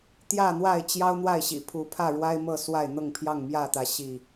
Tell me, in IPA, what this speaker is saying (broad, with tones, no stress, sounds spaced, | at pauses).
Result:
t̪ j ä˥˨ n̪ w a˥˨ ɪ̯ t͡ɕ j ɑ˦ ʊ̯ n̪ w a˥˨ ɪ̯ ɕ ḭ˨˩ pʰ u˨˦ pʰ ä˥˨ ɻ w a˦ ɪ̯ m ɤ˥˨ s w a˥˨ ɪ̯ n̪ ɤ˥˨ ŋ pʰ j ɑ˥˨ ŋ m j ä˥˨ t̪ ä˨˦ ɕ i˥˨